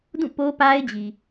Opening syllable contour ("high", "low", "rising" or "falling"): falling